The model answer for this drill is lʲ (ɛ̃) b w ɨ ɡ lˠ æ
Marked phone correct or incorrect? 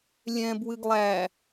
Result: correct